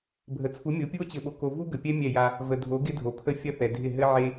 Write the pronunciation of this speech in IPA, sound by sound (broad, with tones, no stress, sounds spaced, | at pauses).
bʱ ə˨ t͡sʰ u˨˦ mʲ o˨˦ pʲ u˦ o̯ t͡ɕ ɘ˨ ɓ o˨ k o˨ v u˦ ɡ ə˨ pʲ ɛ˦ mʲ ɛ˦˨ j a˦ | v ə˨ dʱ o˨˦ ɡ ɪ˦ dʱ o˨ pʰ ə˦ fʲ ɐ˦ θ ɛ˨ dʱ ɪ˦˨ ɦ ɘ˦ ʕ e˦